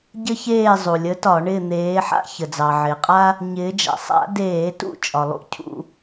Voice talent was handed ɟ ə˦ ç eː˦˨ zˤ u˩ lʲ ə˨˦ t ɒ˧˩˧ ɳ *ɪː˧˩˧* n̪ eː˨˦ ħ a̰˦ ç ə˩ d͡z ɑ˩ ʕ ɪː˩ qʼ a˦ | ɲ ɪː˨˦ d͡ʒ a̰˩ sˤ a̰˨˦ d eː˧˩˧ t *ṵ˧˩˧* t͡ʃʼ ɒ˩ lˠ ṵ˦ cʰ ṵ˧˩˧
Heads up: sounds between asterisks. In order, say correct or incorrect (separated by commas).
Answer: incorrect, incorrect